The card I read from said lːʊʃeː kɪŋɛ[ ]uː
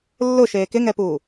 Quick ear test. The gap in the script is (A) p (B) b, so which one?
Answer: A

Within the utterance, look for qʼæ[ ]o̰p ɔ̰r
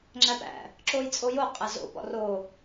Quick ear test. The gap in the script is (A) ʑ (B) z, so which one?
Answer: B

